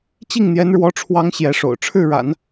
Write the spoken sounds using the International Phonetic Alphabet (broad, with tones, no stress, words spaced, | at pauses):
t͡ɕi˥˩ŋn̪jɛ˧˥nɻwɔ˧˥ʈ͡ʂʰwɑ˧˥ŋ ɕjɛ˧˥ʂo̰˨˩ʊ̯ʈ͡ʂʰɻ̩˥˩ɻa̰˨˩˦n